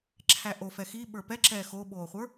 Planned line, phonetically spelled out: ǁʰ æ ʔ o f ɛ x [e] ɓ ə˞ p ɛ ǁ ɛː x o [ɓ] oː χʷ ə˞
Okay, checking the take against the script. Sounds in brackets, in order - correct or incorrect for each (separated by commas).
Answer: incorrect, correct